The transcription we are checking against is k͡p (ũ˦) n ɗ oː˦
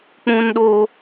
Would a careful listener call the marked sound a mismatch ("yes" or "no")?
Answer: no